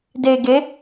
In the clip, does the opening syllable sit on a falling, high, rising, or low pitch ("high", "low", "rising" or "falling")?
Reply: low